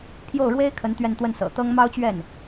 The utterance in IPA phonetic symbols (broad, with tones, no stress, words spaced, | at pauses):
pʰjo˥˩ʊ̯ɻwe˥ɪ̯ kʰə˧˥n t̪ɥɛ˥˧n t̪wə˥˩nsɤ̰˨˩t̪ɤ˥ŋ mɑ˥ʊ̯t͡ɕɥɛ˥˩n